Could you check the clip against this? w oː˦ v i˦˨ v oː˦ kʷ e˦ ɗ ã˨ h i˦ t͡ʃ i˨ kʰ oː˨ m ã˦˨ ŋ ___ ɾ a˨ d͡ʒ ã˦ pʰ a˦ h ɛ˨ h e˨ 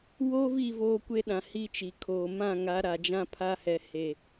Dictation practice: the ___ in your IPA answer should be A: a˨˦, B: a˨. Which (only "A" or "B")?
A